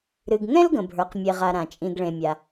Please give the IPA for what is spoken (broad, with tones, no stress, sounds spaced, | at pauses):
ɾ ɨ˩ ɡ ŋ ɛ̃˥ l ɡ ə̃˩ bʱ ə˞˩ q mʲ e˩ ʁ a˩ ɾ ã˩ t͡ʃʼ ĩ˩ ɡ ɭ ẽ˩ mʲ a˩